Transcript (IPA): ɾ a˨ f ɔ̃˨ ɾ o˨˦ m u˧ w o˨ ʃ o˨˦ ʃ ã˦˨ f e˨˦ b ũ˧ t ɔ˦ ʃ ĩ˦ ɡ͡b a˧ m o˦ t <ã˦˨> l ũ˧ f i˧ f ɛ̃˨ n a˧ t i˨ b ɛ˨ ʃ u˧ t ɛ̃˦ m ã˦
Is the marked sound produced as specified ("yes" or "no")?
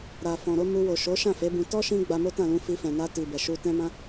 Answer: yes